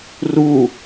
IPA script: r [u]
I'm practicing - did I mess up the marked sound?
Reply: no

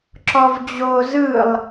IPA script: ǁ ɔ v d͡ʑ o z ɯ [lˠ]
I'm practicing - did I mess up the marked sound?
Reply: no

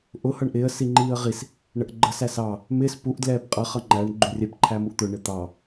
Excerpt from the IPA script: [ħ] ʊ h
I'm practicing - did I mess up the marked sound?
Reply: yes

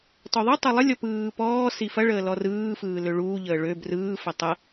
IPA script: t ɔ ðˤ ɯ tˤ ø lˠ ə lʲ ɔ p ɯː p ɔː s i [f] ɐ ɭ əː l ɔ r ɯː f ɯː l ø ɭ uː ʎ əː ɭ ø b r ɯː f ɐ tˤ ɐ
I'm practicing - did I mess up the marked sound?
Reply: no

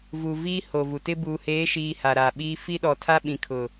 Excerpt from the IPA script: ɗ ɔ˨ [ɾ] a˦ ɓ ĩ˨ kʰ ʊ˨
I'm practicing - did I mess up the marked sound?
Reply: yes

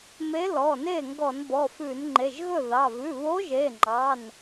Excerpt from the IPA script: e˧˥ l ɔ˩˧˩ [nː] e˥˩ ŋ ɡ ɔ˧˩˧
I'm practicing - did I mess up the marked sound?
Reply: yes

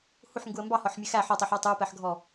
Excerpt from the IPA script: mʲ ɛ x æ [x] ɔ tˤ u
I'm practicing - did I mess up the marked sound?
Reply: yes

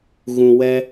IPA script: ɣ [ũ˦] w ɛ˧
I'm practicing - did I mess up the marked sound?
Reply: yes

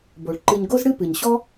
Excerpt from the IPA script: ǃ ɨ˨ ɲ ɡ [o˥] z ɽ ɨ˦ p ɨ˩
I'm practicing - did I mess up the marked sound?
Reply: yes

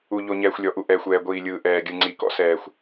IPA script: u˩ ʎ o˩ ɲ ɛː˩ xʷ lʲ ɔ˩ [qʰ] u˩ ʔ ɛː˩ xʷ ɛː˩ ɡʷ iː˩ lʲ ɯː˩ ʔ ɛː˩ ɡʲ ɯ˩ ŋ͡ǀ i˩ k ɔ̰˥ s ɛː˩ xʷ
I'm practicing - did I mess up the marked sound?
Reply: yes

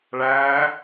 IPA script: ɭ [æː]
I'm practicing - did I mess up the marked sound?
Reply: no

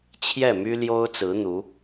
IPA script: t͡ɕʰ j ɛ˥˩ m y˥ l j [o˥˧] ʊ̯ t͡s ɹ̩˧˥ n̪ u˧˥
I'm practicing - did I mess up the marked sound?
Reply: yes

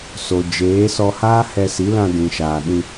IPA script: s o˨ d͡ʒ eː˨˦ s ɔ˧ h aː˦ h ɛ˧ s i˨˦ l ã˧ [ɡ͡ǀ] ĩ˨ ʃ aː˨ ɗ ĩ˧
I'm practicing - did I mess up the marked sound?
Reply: yes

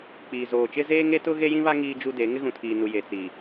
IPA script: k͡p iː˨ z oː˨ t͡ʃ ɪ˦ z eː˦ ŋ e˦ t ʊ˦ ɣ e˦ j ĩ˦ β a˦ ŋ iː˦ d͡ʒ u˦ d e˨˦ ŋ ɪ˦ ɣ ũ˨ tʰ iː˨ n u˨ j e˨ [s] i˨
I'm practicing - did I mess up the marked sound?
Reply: yes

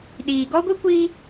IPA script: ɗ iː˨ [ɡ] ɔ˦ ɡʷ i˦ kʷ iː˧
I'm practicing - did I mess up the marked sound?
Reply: no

